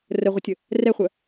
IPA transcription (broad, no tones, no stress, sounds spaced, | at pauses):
r ə ʁʷ ə tʲ ə | r ɛ χʷ œ